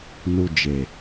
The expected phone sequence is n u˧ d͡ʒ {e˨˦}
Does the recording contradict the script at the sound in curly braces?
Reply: yes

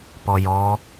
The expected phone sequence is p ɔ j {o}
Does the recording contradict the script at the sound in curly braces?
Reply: yes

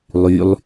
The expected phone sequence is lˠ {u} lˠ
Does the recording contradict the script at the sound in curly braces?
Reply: yes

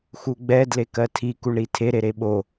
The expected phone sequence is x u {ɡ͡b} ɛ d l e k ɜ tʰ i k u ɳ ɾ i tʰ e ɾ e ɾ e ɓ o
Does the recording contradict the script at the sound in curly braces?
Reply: no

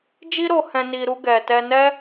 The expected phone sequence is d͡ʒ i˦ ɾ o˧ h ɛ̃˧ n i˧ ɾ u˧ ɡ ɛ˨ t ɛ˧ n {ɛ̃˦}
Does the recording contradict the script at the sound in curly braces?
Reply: yes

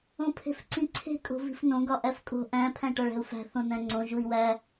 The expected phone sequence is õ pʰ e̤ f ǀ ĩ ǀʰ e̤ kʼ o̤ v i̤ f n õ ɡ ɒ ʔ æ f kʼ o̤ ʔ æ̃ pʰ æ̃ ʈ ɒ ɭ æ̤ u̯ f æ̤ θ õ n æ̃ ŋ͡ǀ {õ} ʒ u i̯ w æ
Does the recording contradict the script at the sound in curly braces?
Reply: no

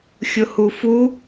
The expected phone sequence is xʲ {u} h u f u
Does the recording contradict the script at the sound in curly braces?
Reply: yes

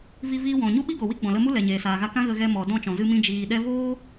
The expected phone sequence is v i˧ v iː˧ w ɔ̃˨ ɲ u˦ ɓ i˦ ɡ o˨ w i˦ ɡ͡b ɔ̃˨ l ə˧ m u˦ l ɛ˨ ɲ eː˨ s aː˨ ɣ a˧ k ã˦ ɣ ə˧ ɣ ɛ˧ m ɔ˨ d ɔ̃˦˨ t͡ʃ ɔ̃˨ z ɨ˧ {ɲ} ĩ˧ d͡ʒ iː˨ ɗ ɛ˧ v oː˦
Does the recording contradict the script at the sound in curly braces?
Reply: yes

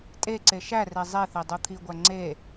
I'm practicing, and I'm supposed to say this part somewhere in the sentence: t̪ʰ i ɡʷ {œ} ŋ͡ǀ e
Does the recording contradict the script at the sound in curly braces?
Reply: yes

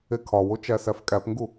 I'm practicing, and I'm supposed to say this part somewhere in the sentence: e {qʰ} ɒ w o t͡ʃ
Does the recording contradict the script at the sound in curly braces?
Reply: yes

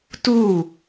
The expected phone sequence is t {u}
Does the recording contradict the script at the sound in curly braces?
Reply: no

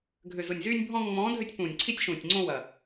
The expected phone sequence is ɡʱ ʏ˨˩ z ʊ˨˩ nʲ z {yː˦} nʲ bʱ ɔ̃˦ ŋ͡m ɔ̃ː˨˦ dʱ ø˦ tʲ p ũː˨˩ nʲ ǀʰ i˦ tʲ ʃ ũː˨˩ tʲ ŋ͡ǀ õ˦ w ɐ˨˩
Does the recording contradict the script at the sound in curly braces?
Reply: no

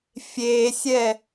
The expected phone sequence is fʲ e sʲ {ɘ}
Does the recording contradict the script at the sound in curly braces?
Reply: yes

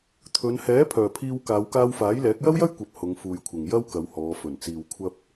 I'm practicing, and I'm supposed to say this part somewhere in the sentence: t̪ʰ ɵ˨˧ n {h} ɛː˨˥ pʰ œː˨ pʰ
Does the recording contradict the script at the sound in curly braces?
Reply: no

